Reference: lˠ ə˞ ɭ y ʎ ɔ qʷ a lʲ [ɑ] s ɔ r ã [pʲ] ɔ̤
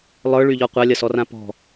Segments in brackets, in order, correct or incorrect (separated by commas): incorrect, incorrect